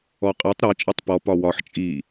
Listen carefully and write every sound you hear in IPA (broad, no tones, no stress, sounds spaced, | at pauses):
ɔ qʼ e tˤ ɾ ɒ t͡ʃʼ e tˤ p ɔ p ɒ w ɒ ħ t͡ʃʼ i